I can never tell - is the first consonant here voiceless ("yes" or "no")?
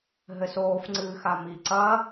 no